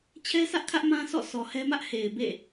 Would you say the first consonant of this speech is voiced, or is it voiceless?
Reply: voiceless